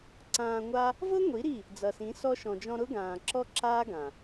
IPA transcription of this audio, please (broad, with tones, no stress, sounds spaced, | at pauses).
ǀ ãː˧ ŋʷ a˦ | v ɤ˦ ŋʷ i˨˦ ɾ i˦˨ | d͡z ʌ˨ s ĩ˨˦ s ɔ˧ ʃ ɔ̃˨ d͡ʒ ɔ̃˧ ɾ ʊ˦ ɡ ãː˨ ǁ ɔ˦ ǁ aː˦ ɡ ã˨